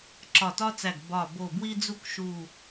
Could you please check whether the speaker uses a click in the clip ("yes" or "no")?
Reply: yes